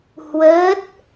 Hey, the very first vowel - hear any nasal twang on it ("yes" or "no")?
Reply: no